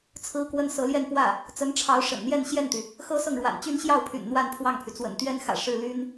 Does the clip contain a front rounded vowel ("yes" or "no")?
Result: yes